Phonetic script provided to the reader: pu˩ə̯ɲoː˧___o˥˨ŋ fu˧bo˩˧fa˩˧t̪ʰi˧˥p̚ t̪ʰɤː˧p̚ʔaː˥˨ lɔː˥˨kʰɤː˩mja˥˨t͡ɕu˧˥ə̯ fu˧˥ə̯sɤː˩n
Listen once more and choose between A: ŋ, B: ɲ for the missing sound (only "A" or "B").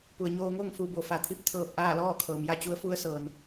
A